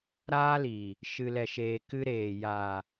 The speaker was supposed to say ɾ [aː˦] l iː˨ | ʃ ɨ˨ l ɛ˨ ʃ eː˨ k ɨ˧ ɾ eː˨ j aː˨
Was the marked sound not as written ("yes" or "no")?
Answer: no